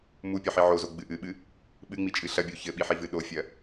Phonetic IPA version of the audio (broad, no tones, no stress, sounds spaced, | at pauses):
m u pʲ ɔ ħ i ʕ o z o ɡ͡b ɨ ʔ ɨ ɓ ɨ | ɓ ɨ ŋ͡m i t͡ʃʼ ɨ ɬ ɐ bʲ o ç ɘ ɓ i ħ i v ɨ ɗ o fʲ ɐ